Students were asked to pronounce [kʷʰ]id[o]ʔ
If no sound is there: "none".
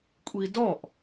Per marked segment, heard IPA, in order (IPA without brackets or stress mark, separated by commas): kʷʼ, ɔ